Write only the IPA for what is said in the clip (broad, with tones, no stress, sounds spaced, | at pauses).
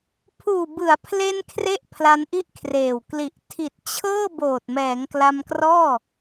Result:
pʰ uː˨˩ b ɯ˩˦ a̯ pʰ l e˧ n kʰ r e˥˩ ʔ pʰ l a˧ n ʔ i˥˩ ʔ kʰ r eː˨˩ w k l i˨˩ ʔ tʰ i˨˩ t̚ t͡ɕʰ ɤː˥˩ b oː˨˩ t̚ m ɛː˩˦ ŋ k l a˧ m k r ɔː˥˩